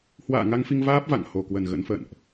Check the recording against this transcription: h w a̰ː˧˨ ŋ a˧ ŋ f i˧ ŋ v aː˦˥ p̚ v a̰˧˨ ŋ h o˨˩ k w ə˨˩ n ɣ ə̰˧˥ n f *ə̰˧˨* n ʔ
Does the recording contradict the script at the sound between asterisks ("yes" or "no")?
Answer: no